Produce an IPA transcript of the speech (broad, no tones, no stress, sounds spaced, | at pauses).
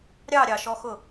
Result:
ɾʲ ɑ ɾʲ ɑ ʃ ɔ x ʊ